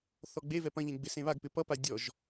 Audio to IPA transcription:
θ ɔ ɡ͡b e v ɛ p ɐ̃ ʎ ẽ ɡ͡b ɪ s ẽ β a ɡ p ɪ p ʌ p a dʲ ɔ ʒ

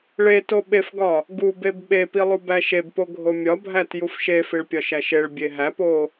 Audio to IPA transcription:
ɭ e t o ɓ e f ɡ ɒ | ɡ u b e b ɓ e p i lˠ u b æ ʃ e b p o ɡʱ o mʲ ɒ bʱ æ t j u f ʃ e f i ɭ pʲ ɒ ʃ æ ʃ e ɭ bʲ e ɦ æ p o

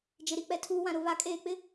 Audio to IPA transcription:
d͡ʒ ɪ˨ ɾ i˨ k͡p ɛ˨ tʰ uː˨ w ã˨ ɾ ʊ˨ β a˨˦ kʼ eː˨ k͡p ɪ˦

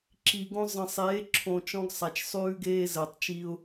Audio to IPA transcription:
ǁ i˨ ɡ õ˦ zˤ ə̃˨ sˤ eː˨˦ ǁʰ õ˨ t͡ʃ ɔ̃˦ ɡ sˤ a˨ t͡ʃ sˤ ʉː˦ ɡ eː˦ z əː˨ tˤ t͡ʃ i˦ ʊ̯

